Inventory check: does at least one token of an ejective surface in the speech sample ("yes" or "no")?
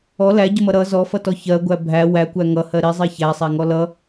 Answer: no